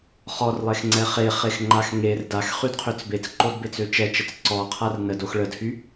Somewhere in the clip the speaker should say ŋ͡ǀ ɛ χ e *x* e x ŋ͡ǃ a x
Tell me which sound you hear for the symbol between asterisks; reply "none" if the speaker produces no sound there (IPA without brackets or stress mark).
χ